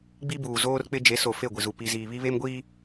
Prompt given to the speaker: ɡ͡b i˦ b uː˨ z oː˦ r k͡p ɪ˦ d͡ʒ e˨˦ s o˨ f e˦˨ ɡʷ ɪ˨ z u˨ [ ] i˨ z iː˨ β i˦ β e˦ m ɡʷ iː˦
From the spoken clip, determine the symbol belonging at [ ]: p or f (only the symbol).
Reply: p